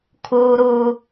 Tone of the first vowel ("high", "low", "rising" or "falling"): low